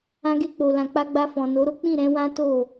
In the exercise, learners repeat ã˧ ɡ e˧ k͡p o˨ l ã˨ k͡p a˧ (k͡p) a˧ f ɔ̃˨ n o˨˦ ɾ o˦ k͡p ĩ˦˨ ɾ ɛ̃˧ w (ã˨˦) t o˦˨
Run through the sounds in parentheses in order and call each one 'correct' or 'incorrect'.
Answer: incorrect: ɡ͡b, incorrect: ã˦

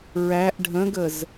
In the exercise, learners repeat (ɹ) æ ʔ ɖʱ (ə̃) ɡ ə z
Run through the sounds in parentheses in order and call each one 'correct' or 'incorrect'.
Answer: correct, correct

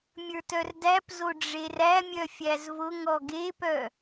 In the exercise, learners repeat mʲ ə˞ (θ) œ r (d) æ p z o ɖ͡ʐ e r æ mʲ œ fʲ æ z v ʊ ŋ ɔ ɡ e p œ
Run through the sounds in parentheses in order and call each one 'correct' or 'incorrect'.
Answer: incorrect: t, correct

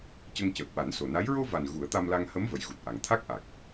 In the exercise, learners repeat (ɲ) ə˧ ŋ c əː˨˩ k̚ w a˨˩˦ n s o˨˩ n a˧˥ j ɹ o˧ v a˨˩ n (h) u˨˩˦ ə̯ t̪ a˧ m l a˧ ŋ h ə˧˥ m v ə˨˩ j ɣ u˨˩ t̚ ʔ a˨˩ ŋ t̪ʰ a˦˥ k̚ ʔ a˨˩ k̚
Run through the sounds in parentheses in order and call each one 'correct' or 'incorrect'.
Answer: incorrect: c, incorrect: ɣ

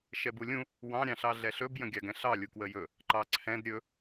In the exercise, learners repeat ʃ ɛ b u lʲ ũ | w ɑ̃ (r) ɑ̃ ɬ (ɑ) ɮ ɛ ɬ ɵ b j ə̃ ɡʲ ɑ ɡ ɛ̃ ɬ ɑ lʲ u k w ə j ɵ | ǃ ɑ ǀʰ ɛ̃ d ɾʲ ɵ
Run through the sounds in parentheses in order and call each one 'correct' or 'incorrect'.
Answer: incorrect: ɾʲ, correct

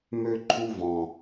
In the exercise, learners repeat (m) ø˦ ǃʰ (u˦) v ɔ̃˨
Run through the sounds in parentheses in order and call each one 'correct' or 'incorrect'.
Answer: correct, correct

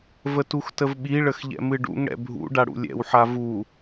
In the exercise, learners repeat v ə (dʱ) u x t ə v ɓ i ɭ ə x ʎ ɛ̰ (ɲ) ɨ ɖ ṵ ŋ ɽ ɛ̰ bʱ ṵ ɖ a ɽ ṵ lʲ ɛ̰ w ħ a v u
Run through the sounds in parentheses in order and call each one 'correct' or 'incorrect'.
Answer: incorrect: t, incorrect: m

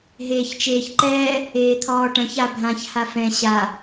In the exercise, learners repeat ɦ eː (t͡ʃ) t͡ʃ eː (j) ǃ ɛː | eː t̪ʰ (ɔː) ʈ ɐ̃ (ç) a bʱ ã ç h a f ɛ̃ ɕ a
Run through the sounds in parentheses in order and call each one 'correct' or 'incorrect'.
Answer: incorrect: ç, incorrect: ç, correct, correct

